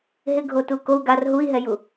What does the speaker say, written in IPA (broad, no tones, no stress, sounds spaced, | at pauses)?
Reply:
ɦ ɪ ɡʱ o t u k o u̯ ɡ a r ɦ u i̯ ɦ ɛ j u